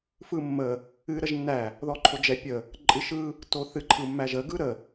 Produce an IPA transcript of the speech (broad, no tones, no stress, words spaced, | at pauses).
fɯmːə | ɨ ɾəʒnːæ | ðɔǃʰod͡ʒɛ pʲə | ǃʼɨʃɯ | toθɨ ǃʰɯmːæʒə ɡɯɾə